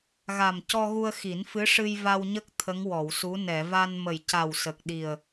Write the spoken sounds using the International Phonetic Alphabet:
ɣ a˨˩ m c ɔ˧ ɣ u˧ ə̯ x i˨˩˦ n f ɨ˧˥ ʂ ɨ˧ j v a˧ w ɲ ə˦˥ k̚ t̪ʰ ə˧˥ ŋ w ɔ˨˩˨ w s u˧˥ n ɛ˨˩˨ v a˧ n m ə˨˩ j c a˨˩ w s ə˨˩ k̚ ɗ i˨˩ ə̯

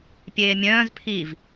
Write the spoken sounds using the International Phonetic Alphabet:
pʲ eː mʲ œ̃ː z pʰ i v

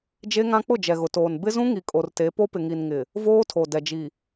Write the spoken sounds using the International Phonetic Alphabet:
d͡ʒ e˦ ŋ ã˦ k͡p ʊ˦˨ d͡ʒ ɛ˨ ɣ ʊ˨ t oː˨ n b ɪ˦ z ũ˦ ŋ i˨ kʼ o˨ r t e˨˦ p o˦ p ɪ˨ ŋ i˨ n ŋ ɪ˨ | v oː˦ tʰ o˨ d ɛ˨ d͡ʒ i˨

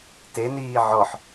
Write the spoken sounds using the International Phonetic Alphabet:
t e n iː ʕ ɔ ħ

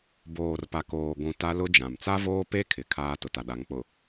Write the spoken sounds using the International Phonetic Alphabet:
b oː˨ r p a˨ k oː˨ ɡʷ ũ˨ t a˦ l ʊ˦ d͡ʒ ã˨ m t͡s a˦ v oː˦ p e˦ kʰ ɪ˨ kʰ aː˦ t ʊ˨ t a˨ ɗ a˨˦ ŋ k͡p ʊ˨

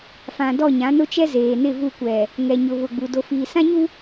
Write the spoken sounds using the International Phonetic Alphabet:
f ã˨ d ɔ˦˨ ɲ ã˨˦ n ʊ˦ t͡ʃ ɛ˦ z eː˨ n ɪ˦˨ v u˦˨ kʷ ɛ˨ | ŋ ɛ˨ ɲ ʊ˨ β ʊ˨ ɡ͡b u˨ d o˨ f iː˨ s ã˦ ɲ u˦

